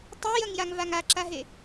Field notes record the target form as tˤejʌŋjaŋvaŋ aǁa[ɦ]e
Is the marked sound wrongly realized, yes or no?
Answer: no